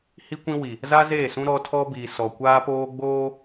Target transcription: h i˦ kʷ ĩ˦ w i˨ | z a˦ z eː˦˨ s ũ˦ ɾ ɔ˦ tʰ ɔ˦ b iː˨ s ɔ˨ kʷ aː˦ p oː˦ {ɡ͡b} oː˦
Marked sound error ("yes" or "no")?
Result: no